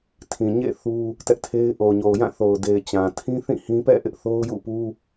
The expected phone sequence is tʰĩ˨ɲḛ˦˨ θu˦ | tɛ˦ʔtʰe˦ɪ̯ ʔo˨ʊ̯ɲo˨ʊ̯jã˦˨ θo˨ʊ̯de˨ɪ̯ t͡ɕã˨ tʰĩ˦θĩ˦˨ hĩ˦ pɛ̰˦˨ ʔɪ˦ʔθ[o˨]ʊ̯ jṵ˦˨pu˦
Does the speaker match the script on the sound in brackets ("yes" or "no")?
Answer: no